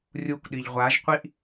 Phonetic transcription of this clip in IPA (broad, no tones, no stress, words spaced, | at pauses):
rʲukʷɗiʎ ʁʷaʒqʷiʔ